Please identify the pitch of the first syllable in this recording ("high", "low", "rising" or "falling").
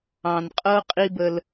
low